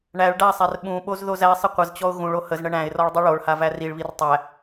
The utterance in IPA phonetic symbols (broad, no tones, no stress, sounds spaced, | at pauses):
ɳ æ ɭ ɖ a sˤ æ r ɓ ũ ɓ o z ð o z æ sˤ ə qʷ ə z t͡ɕ ɔ ʊ̯ ɣ ũ ɭ o h ə z ɳ ə ɳ æ̃ ɪ̯ r ɔ ɭ dˤ i ɭ o ɭ h a v æ r i ɭ β i r tˤ æ